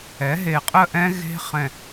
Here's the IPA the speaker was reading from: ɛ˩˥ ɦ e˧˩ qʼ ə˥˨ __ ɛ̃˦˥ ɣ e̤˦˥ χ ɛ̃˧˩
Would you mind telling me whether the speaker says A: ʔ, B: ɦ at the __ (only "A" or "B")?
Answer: A